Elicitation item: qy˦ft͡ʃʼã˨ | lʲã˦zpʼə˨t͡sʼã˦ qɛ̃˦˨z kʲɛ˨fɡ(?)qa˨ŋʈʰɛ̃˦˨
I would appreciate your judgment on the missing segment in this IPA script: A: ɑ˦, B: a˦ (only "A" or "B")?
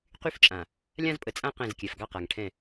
A